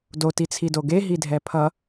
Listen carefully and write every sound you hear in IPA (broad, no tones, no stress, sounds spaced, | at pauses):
d o t i t͡sʰ i d o ɡ e ɦ i dʱ ɛ pʰ ʌ